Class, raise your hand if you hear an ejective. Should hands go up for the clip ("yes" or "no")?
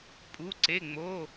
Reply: yes